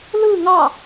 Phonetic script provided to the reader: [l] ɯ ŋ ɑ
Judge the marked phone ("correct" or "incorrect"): correct